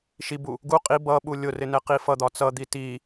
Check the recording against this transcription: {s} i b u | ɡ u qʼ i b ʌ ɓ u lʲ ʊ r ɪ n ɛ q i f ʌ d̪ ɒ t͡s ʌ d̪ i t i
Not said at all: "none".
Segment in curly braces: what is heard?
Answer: ʃ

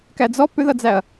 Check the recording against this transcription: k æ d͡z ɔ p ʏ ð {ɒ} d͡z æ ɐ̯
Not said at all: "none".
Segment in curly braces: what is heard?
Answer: ʌ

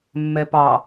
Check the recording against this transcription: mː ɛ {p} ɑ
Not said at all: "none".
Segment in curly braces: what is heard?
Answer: p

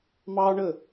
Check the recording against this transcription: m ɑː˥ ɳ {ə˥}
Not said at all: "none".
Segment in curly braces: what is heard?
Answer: ə˥˧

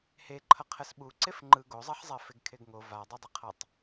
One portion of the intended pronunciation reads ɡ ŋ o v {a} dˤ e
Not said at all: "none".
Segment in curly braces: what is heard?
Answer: a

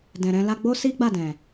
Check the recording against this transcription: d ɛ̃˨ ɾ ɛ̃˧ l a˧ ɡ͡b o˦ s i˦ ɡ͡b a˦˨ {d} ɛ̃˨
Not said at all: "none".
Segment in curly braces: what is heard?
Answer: d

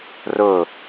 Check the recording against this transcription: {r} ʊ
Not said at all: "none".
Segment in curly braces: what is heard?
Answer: r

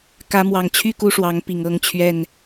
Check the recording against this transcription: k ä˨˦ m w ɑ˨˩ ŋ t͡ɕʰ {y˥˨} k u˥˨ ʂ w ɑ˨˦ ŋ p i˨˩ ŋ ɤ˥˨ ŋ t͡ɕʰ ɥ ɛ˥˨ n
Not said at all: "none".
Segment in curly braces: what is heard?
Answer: y˥˨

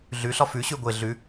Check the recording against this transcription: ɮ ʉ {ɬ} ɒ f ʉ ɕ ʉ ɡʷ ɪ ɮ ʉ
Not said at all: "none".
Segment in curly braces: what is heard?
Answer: ɬ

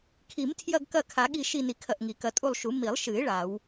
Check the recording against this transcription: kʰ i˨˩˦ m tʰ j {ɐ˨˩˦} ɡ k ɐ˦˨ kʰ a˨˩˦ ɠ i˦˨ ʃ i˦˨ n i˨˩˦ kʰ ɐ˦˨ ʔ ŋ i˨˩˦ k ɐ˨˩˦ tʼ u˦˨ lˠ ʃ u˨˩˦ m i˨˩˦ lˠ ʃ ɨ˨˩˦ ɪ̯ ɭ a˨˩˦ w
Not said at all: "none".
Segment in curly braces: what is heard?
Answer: ɐ˦˨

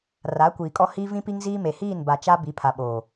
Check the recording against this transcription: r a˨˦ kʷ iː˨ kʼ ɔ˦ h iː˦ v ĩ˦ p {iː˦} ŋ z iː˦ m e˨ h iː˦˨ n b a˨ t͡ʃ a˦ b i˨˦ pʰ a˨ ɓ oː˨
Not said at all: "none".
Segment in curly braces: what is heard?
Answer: i˦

